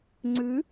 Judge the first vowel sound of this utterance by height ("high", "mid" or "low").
high